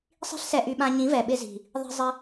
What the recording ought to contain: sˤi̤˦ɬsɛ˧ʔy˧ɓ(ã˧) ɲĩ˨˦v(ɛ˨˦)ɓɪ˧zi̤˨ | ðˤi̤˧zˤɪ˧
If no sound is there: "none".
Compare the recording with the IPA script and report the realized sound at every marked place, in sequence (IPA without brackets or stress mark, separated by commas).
ã˧, ɛ˨